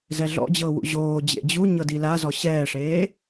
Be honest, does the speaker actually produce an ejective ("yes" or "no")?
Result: no